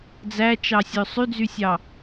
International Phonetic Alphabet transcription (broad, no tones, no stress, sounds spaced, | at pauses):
d͡z æ t͡ʃ ɑ sʲ ø sˤ y d͡z y sʲ ɑ